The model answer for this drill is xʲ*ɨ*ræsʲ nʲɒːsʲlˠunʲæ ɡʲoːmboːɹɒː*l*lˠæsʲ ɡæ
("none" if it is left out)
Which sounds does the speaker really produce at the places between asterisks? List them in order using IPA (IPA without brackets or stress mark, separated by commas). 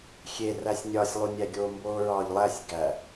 e, ʎ